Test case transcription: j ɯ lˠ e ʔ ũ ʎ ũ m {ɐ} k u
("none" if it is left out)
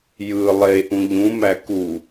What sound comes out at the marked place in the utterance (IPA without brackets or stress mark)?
æ